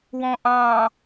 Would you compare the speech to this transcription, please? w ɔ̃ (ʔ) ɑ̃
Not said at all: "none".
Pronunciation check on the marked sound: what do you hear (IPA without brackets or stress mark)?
ʔ